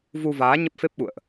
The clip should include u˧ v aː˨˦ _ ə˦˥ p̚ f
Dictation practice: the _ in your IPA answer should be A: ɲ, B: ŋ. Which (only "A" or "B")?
A